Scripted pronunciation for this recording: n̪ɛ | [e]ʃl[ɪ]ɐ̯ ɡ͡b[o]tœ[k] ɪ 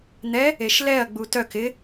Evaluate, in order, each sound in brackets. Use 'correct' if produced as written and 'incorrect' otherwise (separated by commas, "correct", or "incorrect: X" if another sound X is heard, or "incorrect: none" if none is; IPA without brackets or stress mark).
correct, incorrect: ɛ, incorrect: u, correct